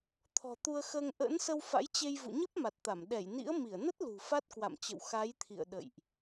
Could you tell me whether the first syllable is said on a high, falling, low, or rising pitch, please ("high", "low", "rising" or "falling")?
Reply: low